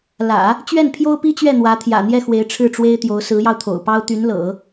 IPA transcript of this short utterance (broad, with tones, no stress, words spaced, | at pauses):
lä̰˨˩˦ | t͡ɕɥɛ˥˩npʰjo˥ʊ̯pi˥t͡ɕɥɛ˥˩ n̪wä˧˥t̪ʰjä̰˨˩ n̪jɛ˥˩xwe˧˥ɪ̯ ʈ͡ʂʰɻ̩˥˩ʈ͡ʂwe˥ɪ̯t̪jo˧˥ʊ̯ sɹ̩˧˥jɑ˧ʊ̯t̪ʰo̰˨˩ʊ̯pɑ˥ʊ̯ t̪y˧˥nlɤ̰˨˩˦